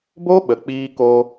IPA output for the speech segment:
b o˦ ɓ ə˨ k͡p iː˧ k o˧

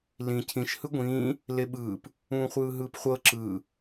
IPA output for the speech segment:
l ĩ cʰ ĩ ʃ h ɯ ɡʷ ĩː | l e ɓ ɯː p | ũː χʷ ɯː ɦ ɯː p χʷ ɤ ǁ ɯː

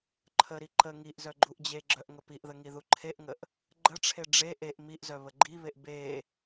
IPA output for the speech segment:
ǃʰ ə ɾ i ǃ ə ŋ i ʔ z œ ɡ͡ǃ u ʔ d͡ʑ e ɡ͡ǁ œ ʔ ŋ ə p i ʔ ð ə ŋ i ð u ǃʰ e ʔ ŋ ə ʔ | ɡ͡ǃ ə ʈ͡ʂʰ e ɖ͡ʐ e ʔ e ʔ m i ʔ z œ β ə ɡ͡ǃ i β e ʔ b e

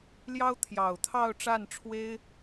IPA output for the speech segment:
l j ɑ˥ ʊ̯ t̪ʰ j ɑ˨˩ ʊ̯ t̪ʰ ɑ˥˧ ʊ̯ ʈ͡ʂ a˥˩ n ʈ͡ʂʰ w e˥ ɪ̯

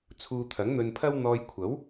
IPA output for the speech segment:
t͡sʰ uː˧ t̪ʰ ɐ˨˥ ŋ n̪ ɵ˧ n pʰ ɐ˥ w n̪ ɔː˧ j kʷʰ ɐ˨˥ w

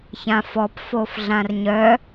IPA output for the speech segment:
ç ã f ɔ p f o f ɮ ã r ɲ œ

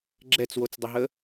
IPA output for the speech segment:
ɡ͡ǁ ɛ t͡s w o t͡s dˤ ɪ ɦ ə

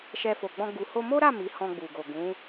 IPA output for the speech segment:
ʃ ɛ˧ f o˨ ɡ͡b ɔ̃˧ ɡ u˨ h o˧ m o˦ ɾ a˦˨ m i˨˦ h ɔ̃˧ ɡ͡b u˨ ɡ o˨ ɡ ũ˨˦

